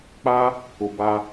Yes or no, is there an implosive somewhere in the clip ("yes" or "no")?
no